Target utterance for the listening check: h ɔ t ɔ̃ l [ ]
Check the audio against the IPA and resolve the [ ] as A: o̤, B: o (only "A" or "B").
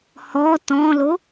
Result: B